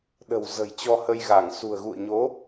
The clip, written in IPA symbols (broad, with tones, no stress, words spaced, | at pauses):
ɗə̤˨˩w zə̤˨˩j t͡ɕɔ˧hə˧jɣa˧˩ŋ sṳ˨˩ə̯ɣṵ˧˨ə̯ɲo˨˦